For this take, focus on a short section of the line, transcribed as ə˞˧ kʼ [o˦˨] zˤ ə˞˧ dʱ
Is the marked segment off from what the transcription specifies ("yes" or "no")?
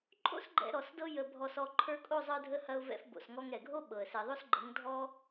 no